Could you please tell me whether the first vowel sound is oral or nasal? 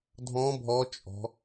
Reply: nasal